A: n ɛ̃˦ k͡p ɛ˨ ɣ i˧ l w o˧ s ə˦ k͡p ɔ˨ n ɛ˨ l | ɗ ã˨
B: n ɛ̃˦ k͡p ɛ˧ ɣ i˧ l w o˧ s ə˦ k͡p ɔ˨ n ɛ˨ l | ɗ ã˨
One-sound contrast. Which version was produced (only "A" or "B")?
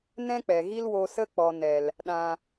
A